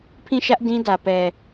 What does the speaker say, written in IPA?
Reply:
pʰ ĩ˦˨ ʃ ä˦ ʔ d ĩ˦ d ä˨ p ɛ˨

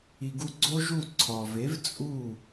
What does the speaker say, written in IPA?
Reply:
i˨ ɡ u˧ ɡ͡ǀ o˦ ʒ u˦˨ ǀʰ ɒ˨ v e˨˦ v t͡sʼ u˦˨

